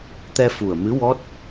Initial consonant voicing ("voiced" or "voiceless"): voiceless